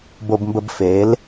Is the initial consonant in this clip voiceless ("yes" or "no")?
no